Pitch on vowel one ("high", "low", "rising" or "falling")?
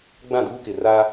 falling